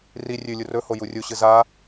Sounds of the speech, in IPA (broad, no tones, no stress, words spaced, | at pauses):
ri rʲʉlʲu rɵho jurʲuɕɨ za